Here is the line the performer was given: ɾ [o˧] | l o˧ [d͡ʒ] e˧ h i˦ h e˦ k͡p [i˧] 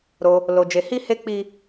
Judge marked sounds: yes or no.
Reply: yes, yes, no

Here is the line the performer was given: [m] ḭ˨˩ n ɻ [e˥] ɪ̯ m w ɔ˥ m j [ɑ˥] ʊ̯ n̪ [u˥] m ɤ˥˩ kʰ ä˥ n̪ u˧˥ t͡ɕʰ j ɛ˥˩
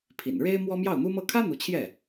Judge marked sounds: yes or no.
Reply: no, yes, no, yes

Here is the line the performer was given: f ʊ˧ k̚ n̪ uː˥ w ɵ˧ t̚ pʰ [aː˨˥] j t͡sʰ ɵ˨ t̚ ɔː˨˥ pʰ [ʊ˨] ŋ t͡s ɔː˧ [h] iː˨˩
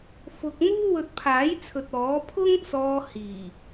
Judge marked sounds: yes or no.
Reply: yes, no, yes

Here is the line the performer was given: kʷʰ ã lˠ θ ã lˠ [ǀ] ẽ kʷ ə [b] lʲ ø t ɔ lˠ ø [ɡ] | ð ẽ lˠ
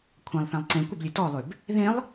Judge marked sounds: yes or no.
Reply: yes, yes, no

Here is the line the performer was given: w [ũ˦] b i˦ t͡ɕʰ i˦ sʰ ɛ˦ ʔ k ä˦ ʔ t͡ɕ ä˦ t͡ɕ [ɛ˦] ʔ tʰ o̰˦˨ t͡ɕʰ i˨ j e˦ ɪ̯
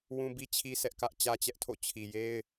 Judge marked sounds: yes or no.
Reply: yes, yes

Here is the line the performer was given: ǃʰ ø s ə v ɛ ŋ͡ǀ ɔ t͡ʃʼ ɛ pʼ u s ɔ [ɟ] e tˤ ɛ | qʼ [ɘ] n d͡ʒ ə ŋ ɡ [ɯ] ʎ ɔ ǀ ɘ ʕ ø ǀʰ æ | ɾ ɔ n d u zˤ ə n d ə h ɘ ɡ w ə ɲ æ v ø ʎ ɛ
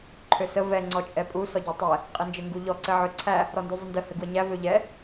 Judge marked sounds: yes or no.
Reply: yes, yes, no

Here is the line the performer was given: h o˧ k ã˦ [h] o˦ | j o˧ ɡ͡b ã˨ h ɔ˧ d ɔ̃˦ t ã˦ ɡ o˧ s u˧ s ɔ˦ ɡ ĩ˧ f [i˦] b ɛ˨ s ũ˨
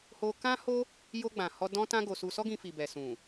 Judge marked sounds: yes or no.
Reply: yes, no

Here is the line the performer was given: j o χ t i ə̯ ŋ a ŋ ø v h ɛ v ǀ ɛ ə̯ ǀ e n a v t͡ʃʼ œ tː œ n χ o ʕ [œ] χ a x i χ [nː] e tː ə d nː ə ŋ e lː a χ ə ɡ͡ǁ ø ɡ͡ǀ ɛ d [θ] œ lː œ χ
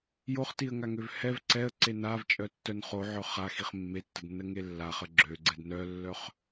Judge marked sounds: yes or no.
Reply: yes, no, no

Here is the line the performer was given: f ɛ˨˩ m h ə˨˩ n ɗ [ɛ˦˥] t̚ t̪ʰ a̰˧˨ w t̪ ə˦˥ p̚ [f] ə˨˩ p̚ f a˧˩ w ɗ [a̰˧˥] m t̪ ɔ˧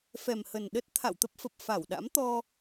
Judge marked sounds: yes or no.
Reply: no, yes, yes

